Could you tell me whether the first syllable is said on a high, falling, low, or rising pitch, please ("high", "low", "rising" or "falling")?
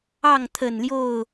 falling